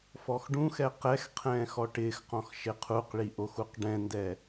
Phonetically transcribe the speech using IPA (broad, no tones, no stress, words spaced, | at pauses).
fɔxɖũxɛ qɛxqʰɛ̃ːx ɔʈɪːxqɔ̃x ʃɪqʰuqɭi ʔoxuqɖɛ̃ndɛ